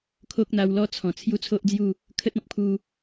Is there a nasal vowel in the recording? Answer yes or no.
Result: yes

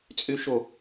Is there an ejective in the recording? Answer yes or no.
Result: yes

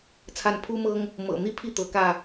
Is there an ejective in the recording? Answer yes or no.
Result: no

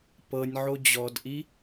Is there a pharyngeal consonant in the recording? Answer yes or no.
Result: yes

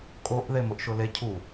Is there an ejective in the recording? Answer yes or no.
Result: yes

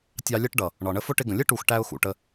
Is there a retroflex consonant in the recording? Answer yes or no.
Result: yes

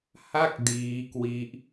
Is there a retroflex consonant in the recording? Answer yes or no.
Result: no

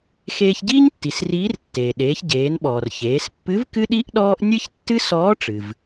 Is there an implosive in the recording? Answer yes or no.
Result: yes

